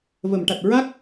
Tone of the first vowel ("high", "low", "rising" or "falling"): low